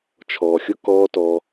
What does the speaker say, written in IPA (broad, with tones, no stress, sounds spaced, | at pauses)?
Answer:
t͡ʃʰ ɔː˨ xʲ ʊ˦ k ɔː˦ t ɔ˦